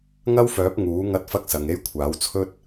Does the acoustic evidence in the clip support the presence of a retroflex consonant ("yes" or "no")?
no